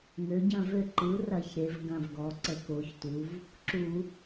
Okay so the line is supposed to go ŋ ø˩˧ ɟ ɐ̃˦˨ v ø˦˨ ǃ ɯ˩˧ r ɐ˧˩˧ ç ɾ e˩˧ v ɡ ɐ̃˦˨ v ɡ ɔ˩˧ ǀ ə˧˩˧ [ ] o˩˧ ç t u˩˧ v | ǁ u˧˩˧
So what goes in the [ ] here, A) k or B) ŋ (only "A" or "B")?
A